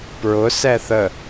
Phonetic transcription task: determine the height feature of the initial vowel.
high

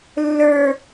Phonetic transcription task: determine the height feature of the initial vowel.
mid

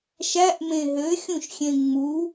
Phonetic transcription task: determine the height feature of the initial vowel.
low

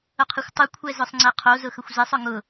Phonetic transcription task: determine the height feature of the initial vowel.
high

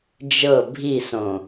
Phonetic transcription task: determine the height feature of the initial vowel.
mid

